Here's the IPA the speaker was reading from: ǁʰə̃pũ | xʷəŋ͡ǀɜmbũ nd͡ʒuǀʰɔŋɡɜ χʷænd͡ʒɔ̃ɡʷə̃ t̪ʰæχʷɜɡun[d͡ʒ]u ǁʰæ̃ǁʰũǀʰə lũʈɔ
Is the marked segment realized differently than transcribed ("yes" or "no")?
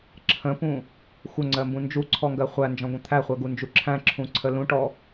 no